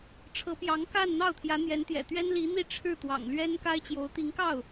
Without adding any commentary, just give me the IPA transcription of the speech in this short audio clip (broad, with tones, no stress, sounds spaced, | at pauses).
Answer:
ʈ͡ʂʰ ɤ˧˥ p j ɑ˧˥ ŋ k a˥˧ n n̪ ɑ˥˩ ʊ̯ t̪ʰ j ä˧˥ n̪ j ɛ˧˥ n t̪ j ɛ̰˨˩ t̪ ɥ ɛ˥ n l i˧˥ n̪ i˥˧ ʈ͡ʂʰ ɻ̩˥˩ t̪ w ɑ̰˨˩ ŋ l ɥ ɛ˥ n k a˥ ɪ̯ t͡ɕ j o˧˥ ʊ̯ t̪ i˧˥ ŋ k ɑ˥˩ ʊ̯